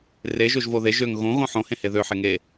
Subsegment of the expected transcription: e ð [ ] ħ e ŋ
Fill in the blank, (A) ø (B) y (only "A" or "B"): A